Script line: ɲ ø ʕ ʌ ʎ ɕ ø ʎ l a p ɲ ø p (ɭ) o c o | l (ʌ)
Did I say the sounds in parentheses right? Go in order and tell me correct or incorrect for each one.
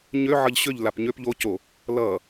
incorrect, correct

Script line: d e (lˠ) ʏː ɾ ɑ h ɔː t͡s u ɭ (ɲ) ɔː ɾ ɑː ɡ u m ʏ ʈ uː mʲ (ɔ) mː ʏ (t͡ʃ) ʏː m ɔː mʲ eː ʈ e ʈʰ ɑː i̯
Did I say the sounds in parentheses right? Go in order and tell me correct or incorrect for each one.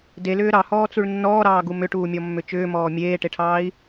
incorrect, incorrect, correct, correct

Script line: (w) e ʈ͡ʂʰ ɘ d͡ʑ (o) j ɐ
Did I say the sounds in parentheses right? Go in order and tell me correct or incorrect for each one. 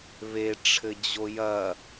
incorrect, correct

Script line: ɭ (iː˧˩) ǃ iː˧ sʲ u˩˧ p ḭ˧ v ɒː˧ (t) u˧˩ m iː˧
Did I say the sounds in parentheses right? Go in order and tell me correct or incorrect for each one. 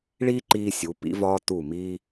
incorrect, correct

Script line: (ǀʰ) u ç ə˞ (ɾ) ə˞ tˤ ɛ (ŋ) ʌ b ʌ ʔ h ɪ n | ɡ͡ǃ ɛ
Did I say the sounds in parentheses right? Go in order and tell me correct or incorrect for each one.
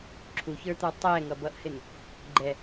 incorrect, incorrect, correct

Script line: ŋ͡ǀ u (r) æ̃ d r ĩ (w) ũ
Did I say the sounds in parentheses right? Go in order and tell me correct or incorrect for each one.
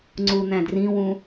incorrect, correct

